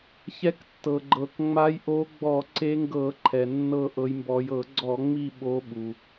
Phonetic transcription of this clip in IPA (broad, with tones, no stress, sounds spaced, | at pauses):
ç ɛ˨˦ k tː ɤ˩ ɡ͡ǃ ɤ˩ k ŋ͡m a˨˦ j ʔ o˨˦ ɡ͡b ɔ˧˩˧ ǀ e˨˦ ŋ ɡ ɤ˧˩˧ ǃʰ ɛ˩ nː ɤ˦˨ ʔ ɤ˨˦ j m b ɔ˨˦ j ɤ˧˩˧ ɡ͡ǀ ɔ˧˩˧ ŋ͡m i˦˨ ɓ o˨˦ ɓ u˩